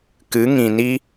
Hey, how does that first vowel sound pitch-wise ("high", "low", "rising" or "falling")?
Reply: rising